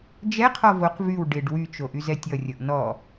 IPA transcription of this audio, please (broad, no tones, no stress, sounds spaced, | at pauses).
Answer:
d͡ʒ ɛ qʰ ɔ v o q v y w ɖ ɪ ɖ w y t͡ʃ o ʔ y z ɛ tʲ ʌ rʲ ʌ ʔ n ɔ